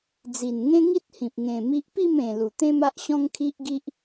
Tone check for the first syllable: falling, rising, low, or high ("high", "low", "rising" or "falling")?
low